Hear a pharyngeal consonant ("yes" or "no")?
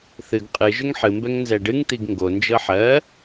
yes